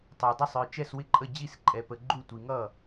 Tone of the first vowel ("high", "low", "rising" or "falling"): low